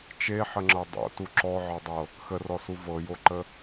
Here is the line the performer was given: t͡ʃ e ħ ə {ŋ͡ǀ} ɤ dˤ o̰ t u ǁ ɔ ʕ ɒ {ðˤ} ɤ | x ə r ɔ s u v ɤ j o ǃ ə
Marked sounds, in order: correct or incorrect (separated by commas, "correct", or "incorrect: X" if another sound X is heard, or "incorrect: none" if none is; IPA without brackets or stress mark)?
incorrect: ŋ͡ǁ, incorrect: dˤ